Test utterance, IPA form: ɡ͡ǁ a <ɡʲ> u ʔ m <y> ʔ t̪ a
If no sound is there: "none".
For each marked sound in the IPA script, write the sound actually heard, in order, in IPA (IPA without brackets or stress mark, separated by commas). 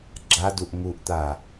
d, u